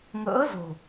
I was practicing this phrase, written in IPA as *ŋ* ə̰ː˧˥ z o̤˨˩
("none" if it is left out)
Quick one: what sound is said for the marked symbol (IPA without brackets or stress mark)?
ŋ